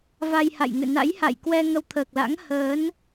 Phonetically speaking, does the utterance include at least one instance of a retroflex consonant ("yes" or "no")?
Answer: no